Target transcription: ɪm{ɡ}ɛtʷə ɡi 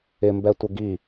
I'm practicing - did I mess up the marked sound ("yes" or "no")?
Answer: yes